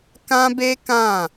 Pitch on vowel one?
high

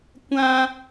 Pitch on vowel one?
high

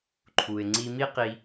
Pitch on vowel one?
low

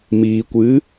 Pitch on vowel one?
low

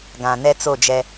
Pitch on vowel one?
low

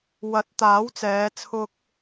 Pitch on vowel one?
rising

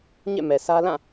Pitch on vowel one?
falling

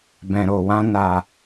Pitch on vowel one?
low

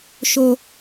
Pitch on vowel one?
low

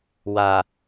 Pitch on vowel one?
low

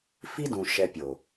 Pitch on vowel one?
high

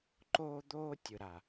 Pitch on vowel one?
high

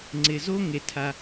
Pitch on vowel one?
low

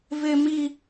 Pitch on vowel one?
high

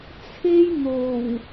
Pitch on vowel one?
high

